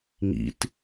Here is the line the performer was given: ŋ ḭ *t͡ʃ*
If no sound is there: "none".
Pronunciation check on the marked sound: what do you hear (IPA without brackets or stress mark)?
t